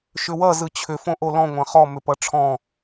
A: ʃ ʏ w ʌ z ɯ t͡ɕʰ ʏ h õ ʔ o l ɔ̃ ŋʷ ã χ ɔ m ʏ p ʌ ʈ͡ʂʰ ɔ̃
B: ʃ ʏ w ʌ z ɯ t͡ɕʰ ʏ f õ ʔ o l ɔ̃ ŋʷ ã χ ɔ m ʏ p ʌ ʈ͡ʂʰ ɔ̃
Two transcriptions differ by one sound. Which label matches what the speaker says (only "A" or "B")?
B